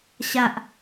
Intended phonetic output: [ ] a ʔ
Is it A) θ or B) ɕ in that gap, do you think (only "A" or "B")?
B